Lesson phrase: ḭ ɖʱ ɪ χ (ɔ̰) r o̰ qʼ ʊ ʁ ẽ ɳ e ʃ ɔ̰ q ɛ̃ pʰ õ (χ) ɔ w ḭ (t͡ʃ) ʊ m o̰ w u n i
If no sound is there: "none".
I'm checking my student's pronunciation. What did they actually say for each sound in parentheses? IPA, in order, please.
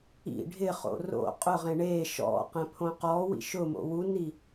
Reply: o̰, q, ʃ

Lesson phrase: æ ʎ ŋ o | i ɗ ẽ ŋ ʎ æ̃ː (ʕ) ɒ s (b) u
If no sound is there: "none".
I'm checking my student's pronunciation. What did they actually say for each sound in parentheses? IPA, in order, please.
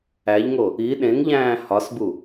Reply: h, b

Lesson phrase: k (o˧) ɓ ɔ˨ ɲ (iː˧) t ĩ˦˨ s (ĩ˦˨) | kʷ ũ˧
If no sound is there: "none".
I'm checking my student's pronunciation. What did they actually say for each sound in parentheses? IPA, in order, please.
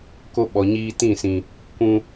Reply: o˧, iː˧, ĩ˧

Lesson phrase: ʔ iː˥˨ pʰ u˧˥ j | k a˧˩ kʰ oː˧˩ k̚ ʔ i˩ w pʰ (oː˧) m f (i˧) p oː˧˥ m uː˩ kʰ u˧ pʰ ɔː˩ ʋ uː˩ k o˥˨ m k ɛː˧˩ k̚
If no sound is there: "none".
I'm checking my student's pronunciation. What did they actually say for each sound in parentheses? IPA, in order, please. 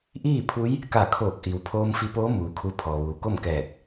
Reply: oː˧, i˧

